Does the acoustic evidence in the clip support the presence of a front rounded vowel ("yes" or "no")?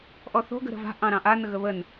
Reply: no